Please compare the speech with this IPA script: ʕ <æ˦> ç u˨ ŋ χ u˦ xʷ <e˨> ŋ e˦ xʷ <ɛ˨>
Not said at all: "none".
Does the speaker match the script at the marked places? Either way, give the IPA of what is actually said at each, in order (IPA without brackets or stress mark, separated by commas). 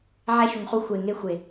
æ˦, e˨, e˨